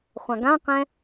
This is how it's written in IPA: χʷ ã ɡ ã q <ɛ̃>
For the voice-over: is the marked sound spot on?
yes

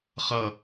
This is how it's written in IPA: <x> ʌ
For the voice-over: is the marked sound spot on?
no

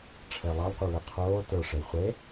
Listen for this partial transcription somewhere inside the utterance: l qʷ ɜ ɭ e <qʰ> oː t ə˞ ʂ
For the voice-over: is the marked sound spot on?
yes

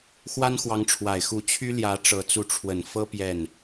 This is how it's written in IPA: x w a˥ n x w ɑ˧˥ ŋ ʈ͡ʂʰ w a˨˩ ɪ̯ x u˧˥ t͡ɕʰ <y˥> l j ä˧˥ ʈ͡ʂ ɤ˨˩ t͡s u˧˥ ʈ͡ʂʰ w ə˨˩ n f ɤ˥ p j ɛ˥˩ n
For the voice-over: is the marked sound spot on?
yes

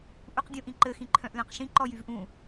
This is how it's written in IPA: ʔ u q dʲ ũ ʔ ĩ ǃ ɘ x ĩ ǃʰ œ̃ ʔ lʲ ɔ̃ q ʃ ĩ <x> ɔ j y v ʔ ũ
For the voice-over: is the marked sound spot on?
no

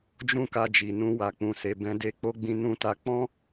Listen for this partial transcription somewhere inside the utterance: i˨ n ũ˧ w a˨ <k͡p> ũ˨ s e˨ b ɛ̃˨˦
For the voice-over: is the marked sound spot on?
yes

